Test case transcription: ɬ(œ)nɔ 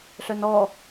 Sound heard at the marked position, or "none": œ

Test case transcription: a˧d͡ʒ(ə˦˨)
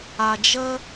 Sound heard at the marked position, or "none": ə˦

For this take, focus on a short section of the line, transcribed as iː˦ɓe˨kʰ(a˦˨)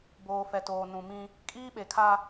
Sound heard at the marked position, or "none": a˦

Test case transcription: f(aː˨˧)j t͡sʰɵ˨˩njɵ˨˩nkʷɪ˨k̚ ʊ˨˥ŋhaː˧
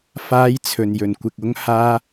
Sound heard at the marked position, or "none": aː˨˧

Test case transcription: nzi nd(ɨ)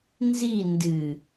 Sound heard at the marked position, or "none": ɨ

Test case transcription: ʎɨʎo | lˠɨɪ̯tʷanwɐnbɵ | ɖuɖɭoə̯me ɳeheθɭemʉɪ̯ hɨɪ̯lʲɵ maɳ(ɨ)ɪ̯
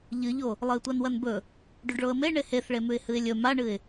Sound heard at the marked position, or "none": ɨ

